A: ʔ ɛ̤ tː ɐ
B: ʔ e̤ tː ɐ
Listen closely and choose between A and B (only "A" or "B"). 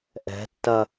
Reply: A